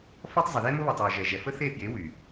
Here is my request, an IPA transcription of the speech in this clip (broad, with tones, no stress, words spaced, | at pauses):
fɔ˦tˤzˤə˨ðe˦ mʊ˦βɔ˨tˤwʊ˨ ʒɛ˨ʒɛ˨fə˦ θe˦˨fje˨˦ wy˨